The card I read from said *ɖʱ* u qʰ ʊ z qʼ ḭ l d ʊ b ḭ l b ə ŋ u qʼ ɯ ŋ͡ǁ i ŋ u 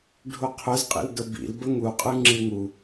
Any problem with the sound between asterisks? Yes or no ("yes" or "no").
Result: no